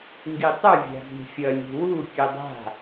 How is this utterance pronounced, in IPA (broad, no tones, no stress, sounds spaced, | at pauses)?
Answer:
ŋ ɡ i tˤ ɯ vʲ a̤ z i̤ fʲ ʌ lʲ ṳ w u kʲ ɯ dˤ a̤